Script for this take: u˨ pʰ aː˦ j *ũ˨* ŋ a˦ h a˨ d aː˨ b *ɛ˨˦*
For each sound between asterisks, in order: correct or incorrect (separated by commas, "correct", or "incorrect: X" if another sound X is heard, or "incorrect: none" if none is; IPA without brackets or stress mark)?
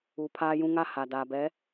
incorrect: ũ˦, correct